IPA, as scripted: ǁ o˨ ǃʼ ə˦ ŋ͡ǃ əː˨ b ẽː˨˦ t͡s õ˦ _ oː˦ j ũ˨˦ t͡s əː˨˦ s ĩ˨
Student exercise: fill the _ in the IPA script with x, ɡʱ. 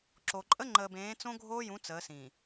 ɡʱ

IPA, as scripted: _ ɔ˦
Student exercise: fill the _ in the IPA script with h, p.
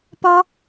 p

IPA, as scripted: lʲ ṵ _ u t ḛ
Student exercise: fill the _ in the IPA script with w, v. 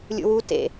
w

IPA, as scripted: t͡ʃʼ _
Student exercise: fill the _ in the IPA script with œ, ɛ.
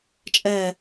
ɛ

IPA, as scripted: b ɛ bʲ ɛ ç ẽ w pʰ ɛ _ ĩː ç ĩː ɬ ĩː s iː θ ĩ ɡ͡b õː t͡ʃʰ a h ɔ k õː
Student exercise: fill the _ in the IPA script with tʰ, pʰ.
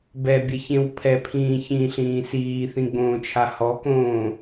pʰ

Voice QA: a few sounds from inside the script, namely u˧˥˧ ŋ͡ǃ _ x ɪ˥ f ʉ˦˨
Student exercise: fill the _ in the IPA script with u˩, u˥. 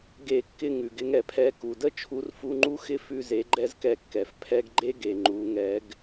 u˥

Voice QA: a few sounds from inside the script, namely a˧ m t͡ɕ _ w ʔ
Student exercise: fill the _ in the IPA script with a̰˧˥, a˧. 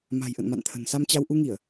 a˧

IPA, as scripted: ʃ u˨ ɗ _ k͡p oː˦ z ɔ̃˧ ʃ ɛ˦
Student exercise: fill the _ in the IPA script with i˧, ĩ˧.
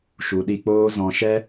i˧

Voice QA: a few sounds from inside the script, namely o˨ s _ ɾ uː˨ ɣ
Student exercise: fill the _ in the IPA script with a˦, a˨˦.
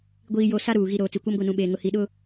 a˦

